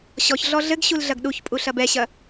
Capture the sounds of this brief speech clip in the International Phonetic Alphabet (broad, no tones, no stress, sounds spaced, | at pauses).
ɕ ɔ ç ɮ ɔ ɮ ɘ ɡ ɕ u l ɮ ɐ ɡ ɗ u ç pʼ u ɬ ɐ b ɛ ɕ ɐ